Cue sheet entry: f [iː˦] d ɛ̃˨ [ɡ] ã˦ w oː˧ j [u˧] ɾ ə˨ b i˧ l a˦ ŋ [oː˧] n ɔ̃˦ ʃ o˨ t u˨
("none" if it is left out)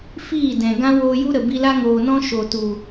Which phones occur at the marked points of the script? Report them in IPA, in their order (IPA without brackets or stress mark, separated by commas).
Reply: iː˦˨, ɡ, u˦, oː˨